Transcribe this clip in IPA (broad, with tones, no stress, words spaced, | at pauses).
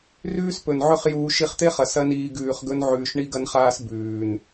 rʉː˦spɵ˨nʕɵ˦χ juː˧ ʃi˧χt̪e˦χɐ˨ sɐ˦niː˧ ɡʉː˨χɡɵ˧nʕʉː˨ʃ ɳi˦ɡɐ˦nχaː˦s bʉː˨n